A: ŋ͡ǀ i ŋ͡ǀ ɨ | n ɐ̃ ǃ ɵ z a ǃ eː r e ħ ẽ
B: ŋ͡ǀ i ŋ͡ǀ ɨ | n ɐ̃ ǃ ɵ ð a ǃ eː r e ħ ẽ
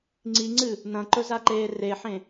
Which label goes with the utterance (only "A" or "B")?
A